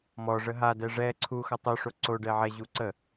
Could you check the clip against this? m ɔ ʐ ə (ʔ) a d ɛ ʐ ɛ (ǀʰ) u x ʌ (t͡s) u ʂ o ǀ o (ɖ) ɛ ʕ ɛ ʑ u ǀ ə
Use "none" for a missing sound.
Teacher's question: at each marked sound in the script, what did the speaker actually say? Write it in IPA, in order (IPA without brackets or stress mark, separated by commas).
ɦ, ǀʰ, tˤ, ɖ